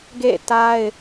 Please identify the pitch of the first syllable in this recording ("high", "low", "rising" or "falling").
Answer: falling